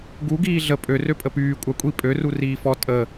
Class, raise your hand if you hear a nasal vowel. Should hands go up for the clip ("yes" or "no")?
no